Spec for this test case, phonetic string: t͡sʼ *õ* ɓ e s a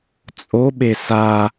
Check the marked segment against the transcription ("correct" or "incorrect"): incorrect